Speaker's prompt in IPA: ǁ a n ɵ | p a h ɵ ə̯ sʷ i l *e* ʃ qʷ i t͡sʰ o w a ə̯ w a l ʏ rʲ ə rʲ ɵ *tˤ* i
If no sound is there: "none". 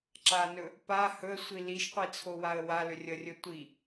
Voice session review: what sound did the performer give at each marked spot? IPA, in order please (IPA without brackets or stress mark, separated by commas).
i, tʷ